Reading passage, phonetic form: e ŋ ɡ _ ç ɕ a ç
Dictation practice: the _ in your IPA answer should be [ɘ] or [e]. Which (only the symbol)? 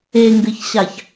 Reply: ɘ